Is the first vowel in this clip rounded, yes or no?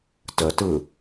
no